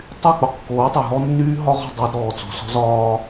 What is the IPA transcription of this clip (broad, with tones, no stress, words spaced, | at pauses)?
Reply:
tˤy˦˨ k͡po˨qkːoː˨˦tˤo˨ ɦɔ˦nːyː˦ ɦɒ˦ʁɔ̤˦˨ dˤəː˦d ɾɔː˨t͡so̤˨ sɔ̤˦zɒː˦